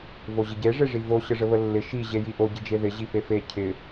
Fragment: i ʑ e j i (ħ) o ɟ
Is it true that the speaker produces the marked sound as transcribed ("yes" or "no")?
no